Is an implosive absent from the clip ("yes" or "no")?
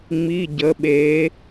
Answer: no